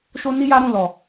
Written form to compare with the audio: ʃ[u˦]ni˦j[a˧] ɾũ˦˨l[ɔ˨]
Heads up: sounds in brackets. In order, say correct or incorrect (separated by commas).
incorrect, incorrect, correct